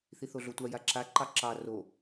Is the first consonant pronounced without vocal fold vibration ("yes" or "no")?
yes